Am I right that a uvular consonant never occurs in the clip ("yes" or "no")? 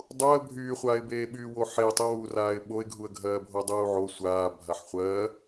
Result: no